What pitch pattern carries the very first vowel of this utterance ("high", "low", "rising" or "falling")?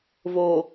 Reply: low